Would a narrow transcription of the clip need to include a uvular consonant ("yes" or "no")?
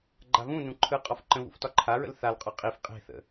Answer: yes